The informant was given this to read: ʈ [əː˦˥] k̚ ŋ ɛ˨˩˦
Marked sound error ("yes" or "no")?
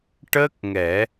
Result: no